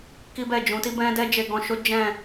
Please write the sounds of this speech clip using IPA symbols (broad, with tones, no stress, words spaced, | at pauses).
ki˦bɛ˦˨ d͡ʒũ˨˦ti˦bɛ̃˦ dɛ˦ d͡ʒe˧ɡɔ̃˧ ʃo˦ d͡ʒɛ̃˦˨